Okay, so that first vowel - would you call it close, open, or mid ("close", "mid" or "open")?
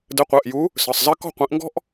mid